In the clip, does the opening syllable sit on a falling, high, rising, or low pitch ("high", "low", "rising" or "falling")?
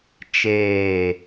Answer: falling